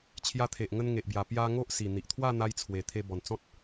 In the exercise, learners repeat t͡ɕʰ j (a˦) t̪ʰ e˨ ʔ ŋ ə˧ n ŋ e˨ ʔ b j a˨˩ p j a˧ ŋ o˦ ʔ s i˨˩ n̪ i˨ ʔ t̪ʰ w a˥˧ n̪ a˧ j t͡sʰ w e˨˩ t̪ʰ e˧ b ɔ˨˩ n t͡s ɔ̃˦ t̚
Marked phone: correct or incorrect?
incorrect